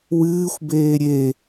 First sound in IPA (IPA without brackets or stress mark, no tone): w